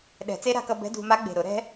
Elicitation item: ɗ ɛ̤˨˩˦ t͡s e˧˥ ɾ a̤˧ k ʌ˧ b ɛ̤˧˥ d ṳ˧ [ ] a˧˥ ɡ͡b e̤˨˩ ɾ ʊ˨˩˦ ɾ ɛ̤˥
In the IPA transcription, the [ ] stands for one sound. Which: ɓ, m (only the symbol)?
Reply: m